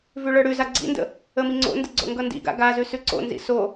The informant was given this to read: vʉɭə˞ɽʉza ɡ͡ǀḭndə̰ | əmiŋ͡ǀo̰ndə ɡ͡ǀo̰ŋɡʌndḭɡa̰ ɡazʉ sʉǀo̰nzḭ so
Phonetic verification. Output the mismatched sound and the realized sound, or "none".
none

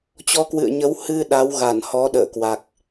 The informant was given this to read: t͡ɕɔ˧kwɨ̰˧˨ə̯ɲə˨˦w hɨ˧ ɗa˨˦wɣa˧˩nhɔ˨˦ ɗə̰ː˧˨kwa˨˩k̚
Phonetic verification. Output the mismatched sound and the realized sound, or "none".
none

